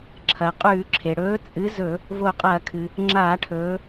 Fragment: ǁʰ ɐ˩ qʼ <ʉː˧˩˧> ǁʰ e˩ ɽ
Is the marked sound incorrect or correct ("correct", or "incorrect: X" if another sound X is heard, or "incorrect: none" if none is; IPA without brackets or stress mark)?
correct